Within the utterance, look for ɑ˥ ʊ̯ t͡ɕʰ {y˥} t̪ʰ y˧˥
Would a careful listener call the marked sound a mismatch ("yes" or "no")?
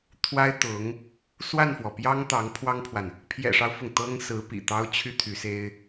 no